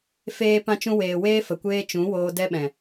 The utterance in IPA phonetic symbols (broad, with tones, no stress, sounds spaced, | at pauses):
f eː˧ p ã˧ t͡ʃ ũ˧ w eː˨ w eː˦ f ə˨ kʷ eː˦ t͡ʃ ũ˨˦ w oː˧ d ɛ˦ ɓ ɛ̃˨